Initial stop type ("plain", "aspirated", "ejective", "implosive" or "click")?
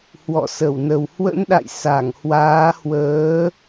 implosive